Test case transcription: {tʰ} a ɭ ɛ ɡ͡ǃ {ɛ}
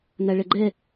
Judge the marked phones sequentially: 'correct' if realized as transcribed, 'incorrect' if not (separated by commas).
incorrect, correct